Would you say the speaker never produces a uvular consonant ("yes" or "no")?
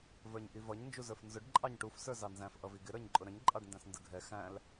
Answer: yes